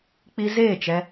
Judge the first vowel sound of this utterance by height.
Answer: high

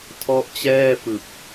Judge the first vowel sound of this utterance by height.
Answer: mid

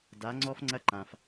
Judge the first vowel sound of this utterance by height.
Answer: low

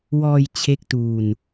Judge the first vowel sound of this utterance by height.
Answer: mid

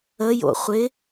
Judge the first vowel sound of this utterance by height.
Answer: mid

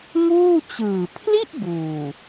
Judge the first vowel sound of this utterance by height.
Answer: high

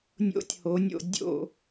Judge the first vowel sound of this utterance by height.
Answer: mid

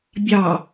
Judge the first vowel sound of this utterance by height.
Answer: low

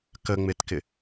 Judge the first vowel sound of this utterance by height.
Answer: mid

